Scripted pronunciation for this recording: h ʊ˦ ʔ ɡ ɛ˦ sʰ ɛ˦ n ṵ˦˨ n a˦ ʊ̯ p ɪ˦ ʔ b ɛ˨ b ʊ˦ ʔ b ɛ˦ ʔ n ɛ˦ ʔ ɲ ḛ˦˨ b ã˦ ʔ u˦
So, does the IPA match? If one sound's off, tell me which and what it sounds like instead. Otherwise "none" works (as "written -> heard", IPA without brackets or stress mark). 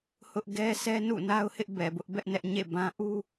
p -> h